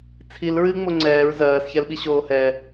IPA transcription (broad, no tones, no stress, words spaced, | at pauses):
t͡sʰil ɹɨŋ͡mo ŋ͡ǀɛːɹ zɜːsçɛl ɓiɕoːhɛ